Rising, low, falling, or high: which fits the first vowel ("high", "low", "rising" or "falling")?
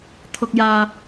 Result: low